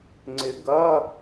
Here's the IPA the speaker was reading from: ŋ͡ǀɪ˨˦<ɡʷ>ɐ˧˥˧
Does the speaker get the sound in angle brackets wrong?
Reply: yes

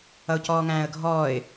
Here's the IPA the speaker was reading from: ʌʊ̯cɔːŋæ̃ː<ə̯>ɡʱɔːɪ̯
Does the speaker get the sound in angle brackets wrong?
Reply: no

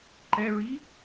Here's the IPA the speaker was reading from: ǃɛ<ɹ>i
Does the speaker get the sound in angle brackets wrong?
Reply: no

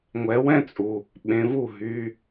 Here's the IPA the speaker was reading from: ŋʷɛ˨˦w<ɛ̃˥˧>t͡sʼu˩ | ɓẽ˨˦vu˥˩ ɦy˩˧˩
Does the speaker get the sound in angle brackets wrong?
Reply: no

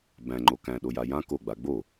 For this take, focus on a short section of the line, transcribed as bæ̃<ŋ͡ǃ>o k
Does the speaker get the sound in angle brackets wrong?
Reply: no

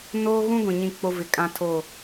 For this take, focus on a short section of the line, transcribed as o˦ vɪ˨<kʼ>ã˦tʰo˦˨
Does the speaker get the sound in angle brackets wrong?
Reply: no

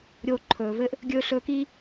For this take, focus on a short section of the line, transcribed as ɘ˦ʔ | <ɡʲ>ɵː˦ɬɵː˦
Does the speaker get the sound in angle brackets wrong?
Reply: no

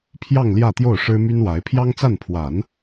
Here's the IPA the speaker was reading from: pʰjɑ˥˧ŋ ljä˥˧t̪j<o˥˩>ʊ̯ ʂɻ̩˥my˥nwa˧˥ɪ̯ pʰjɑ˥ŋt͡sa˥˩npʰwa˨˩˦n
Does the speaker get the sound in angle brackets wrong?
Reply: no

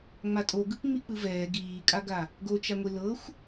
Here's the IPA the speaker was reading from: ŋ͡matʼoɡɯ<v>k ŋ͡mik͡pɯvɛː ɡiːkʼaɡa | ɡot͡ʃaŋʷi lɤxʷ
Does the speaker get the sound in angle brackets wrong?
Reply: yes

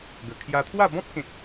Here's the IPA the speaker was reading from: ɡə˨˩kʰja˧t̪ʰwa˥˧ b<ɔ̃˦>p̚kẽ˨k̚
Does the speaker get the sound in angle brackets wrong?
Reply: no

